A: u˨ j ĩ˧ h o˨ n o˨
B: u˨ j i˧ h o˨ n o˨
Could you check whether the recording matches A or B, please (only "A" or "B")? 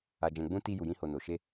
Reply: A